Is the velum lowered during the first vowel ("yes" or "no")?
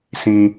yes